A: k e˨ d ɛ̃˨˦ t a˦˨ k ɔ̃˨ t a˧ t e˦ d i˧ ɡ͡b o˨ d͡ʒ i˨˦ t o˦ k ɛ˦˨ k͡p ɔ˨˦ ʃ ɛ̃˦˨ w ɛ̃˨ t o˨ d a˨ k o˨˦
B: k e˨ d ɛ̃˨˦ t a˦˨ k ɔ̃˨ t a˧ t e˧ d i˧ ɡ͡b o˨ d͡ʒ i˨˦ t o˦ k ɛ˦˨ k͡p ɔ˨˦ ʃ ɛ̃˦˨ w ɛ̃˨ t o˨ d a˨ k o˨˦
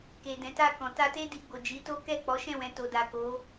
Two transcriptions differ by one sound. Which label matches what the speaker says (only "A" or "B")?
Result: A